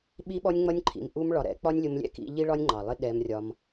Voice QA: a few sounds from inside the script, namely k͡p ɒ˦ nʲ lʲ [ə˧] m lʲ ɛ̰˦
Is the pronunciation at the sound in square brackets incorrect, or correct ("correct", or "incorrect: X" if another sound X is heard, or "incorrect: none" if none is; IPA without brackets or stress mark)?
incorrect: ʊ˧